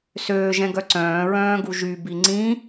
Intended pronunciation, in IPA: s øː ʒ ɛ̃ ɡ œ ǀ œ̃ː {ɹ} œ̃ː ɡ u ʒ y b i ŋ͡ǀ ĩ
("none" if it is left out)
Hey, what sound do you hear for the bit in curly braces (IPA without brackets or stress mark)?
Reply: ɹ